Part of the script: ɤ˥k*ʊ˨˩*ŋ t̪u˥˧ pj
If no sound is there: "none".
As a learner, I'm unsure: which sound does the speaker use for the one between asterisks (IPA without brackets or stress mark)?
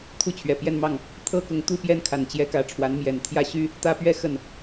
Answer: ʊ˧˥